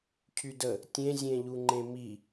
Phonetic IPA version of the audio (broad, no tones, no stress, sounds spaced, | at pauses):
cʰ y d ə | tʲ ẽ zʲ ẽ ʎ u ŋ͡ǃ ẽ m i